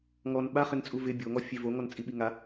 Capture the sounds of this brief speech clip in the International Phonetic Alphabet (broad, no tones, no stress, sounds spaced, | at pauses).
ŋ ɔ n ɓ a χ ɪ n t͡sʼ u v ɪ bʲ o ŋ ɔ fʲ e v o ŋ ɔ n t͡sʼ i ɓ i ŋ a